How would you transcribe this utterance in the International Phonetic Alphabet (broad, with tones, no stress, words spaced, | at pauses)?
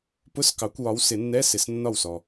pʊ˧˥˧skɑ˨˩˦kʷwɒ˨˦w sɪ˨˩˦nːɛ˧˥˧ sɪ˨snːɒ˥˩wsɔ˨